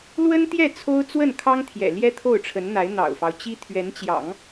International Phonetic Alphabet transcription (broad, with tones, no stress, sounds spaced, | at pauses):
l w ə˥ n t̪ j ɛ˥˩ t͡sʰ o˥ ʊ̯ t͡s w ə˥˩ n kʰ ɑ˥ ŋ t̪ʰ j ɛ̰˨˩ l j ɛ˥ t̪ʰ o˥˩ ʊ̯ ʈ͡ʂʰ ə˧˥ n n̪ a˧˥ ɪ̯ n̪ ɑ̰˨˩ ʊ̯ f ɑ˦ ʊ̯ t͡ɕ i˥ t̪ʰ ɥ ɛ˧˥ n t͡ɕ j ɑ̰˨˩˦ ŋ